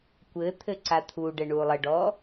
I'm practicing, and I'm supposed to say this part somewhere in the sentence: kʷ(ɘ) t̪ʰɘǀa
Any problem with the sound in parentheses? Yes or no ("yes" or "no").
no